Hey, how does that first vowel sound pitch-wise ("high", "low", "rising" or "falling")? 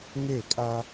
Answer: falling